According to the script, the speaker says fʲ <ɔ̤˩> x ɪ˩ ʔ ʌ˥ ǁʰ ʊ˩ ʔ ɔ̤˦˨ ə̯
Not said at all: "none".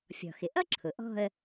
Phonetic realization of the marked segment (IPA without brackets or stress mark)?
ɔ̤˩